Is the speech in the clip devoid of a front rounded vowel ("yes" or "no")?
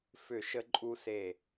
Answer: no